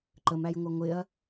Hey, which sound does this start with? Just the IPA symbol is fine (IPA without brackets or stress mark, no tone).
ǃ